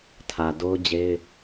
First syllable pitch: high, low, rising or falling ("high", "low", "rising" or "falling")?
low